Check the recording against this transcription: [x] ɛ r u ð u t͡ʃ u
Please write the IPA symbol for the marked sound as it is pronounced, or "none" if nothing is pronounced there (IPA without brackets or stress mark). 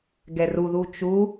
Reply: ɡ